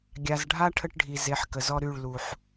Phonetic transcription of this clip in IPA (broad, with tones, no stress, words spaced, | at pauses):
ɡʲa˨zɖʱa˦ ʈʰə˦ʈɖʱi˨ ze˨˦ħ kə˨zɔ˦ ɾy˦˨ɭlu˨ħ